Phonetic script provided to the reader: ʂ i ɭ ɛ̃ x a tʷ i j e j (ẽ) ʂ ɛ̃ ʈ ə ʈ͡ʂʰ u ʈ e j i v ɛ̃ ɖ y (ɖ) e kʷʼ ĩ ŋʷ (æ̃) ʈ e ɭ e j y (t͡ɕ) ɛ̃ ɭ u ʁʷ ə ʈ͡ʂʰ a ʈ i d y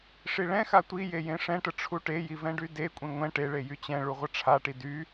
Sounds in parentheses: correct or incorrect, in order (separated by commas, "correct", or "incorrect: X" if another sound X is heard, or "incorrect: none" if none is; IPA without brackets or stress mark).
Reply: correct, incorrect: d, incorrect: ɛ̃, correct